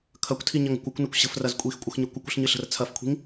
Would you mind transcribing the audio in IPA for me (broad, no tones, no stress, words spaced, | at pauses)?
kʰɐkʷtʰiɲɐŋə̤kʷ ɐkʷnəkʷ ɕə̤frɐz kʷʼixkʷʼəxɲə kʷəkʷə̤ɬɲɨɬə̤r t͡sʰɐfkʷʰi̤ŋ